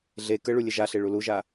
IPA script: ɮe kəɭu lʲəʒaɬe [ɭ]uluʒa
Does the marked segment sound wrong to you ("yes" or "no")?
no